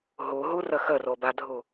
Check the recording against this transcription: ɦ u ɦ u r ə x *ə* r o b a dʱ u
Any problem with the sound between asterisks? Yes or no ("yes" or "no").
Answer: no